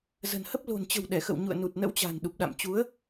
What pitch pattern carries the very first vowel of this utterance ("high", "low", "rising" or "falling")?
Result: low